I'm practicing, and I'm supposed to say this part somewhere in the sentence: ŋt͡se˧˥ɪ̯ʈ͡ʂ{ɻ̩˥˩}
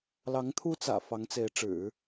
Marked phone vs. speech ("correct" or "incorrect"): incorrect